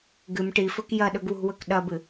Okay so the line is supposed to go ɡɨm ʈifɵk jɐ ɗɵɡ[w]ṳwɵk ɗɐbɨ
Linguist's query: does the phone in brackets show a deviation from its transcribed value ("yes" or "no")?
no